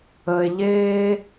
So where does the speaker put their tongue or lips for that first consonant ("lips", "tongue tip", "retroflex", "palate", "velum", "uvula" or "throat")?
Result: palate